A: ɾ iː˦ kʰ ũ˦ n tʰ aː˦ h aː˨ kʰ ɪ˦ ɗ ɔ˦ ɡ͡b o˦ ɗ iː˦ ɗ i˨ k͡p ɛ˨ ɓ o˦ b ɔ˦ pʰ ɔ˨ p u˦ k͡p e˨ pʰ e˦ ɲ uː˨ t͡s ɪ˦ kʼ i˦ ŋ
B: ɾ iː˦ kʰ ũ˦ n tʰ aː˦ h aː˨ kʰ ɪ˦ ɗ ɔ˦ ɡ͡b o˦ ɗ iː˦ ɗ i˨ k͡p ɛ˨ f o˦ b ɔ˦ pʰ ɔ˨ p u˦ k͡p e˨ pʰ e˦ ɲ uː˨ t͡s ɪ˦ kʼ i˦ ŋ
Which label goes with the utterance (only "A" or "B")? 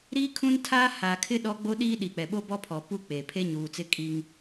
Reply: A